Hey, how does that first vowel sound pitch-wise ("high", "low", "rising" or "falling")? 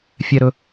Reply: high